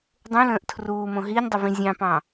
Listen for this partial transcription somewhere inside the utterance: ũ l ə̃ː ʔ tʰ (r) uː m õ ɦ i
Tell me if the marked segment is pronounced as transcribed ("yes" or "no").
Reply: yes